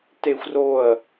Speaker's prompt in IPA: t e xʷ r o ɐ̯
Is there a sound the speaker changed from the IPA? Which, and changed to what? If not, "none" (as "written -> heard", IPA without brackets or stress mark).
none